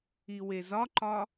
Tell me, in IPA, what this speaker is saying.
i w e z ɒ ǃ ɒ

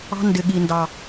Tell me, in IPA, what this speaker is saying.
ɑ̤˦ n d ɪ˨ ɠ i˨ n d ɑ˨

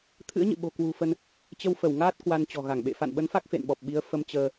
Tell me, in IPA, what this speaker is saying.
t̪ʰ ɨ̰˧˥ ə̯ ɲ ɨ̰˧˨ ɓ o̤˨˩ k w ṳ˨˩ f ə˧ n | t͡ɕ ə˧ w f ə˧˩ w ŋ aː˦˥ t̚ k w a˧ n t͡ɕ ɔ̤˨˩ ɣ a˧˩ ŋ ɓ ḛ˧˨ f a̰˧˨ n ɓ ə˨˦ n f a˦˥ k̚ f ḛ˧˨ n ɓ ɔ˨˩ p̚ ɓ i˨˦ ə̯ f ə˧ m t͡ɕ əː˧

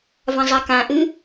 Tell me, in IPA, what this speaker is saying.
v ã zˤ a k ã ʔ ɨ

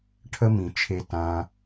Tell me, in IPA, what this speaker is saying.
ʈʰ ə˧ m ĩ˨ t͡ʃʰ e˧ t ã˧

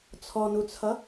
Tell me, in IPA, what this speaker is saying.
t͡sʰ ɔ n u t͡sʰ ʌ

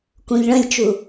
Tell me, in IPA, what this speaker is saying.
k ũ ʎ ɭ ə̃ lʲ t͡ʃ u

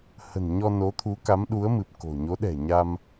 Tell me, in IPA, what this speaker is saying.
h ə̤˨˩ n ɲ ɔ˧ n o˨˦ t̪ʰ u˨˦ k a˨˦ m ɗ u˨˦ ə̯ m ɨ˨˩ p̚ k o̤˨˩ ɲ o˨˦ ɗ ɛ̤˨˩ ɲ a˧ m

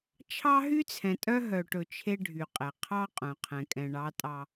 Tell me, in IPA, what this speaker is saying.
t͡ʃʰ ɑ˦ ɦ y˦ t͡sʰ ɛ̃˨ tʼ œ˦ ɦ œ˨ ʈ ɵ˨ t͡ʃʰ e˦ ɖʱ y˨ qʼ ɛ˨ qʰ ɑ˦ qʼ œ̃˨ qʰ ɛ̃˨ kʼ ɛ̃˨ ɳ ɑ˨˦ tʼ ɑ˨

